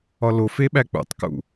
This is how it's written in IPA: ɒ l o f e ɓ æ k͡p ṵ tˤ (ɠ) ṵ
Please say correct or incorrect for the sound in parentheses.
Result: incorrect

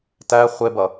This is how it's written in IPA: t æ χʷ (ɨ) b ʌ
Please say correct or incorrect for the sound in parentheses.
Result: incorrect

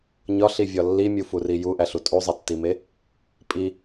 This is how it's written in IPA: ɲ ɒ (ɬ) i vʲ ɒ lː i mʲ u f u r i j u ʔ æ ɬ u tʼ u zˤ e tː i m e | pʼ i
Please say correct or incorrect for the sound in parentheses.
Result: correct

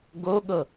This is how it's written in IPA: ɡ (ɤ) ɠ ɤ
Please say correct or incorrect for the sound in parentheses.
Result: incorrect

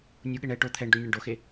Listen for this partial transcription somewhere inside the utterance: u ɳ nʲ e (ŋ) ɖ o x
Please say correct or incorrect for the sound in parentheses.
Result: incorrect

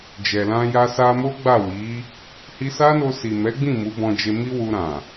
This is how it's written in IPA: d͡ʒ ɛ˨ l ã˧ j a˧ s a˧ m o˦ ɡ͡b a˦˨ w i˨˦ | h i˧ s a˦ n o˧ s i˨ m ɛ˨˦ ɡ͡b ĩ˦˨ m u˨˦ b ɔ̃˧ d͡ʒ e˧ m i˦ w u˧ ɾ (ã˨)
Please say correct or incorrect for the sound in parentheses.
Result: correct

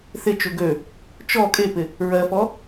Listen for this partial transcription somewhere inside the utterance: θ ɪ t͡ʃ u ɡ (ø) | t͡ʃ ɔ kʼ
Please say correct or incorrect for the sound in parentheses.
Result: correct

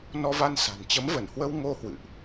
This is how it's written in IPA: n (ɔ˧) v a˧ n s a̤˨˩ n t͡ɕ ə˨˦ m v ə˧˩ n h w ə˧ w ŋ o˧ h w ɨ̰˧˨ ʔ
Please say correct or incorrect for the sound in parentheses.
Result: correct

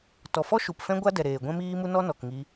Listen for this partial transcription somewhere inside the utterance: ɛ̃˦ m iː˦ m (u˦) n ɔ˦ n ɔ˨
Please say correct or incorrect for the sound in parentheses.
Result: correct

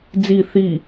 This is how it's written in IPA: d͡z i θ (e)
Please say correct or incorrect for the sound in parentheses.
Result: incorrect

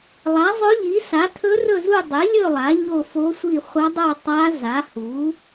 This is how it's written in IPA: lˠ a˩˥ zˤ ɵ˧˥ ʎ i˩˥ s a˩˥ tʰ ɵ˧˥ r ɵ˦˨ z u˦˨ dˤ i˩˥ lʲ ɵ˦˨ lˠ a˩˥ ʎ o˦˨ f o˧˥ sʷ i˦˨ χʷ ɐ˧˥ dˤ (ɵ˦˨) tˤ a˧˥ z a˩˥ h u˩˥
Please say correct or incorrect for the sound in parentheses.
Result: incorrect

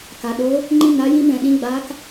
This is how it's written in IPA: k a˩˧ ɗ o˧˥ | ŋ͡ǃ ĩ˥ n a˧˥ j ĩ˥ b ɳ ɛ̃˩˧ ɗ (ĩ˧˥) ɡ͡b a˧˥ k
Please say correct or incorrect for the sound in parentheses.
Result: correct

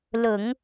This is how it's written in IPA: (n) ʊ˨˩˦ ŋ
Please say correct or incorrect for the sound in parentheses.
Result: incorrect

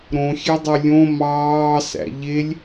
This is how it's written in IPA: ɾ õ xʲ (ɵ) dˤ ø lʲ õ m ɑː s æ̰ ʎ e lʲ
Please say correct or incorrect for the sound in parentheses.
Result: incorrect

